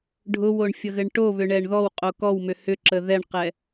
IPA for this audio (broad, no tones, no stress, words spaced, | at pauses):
ɖʱʊwoɳfʲʌɣɘɳ ʈoβʏɳɛɳ ðɔwqʼo kɔwmʏ hʏǁə ðɛɳqɛ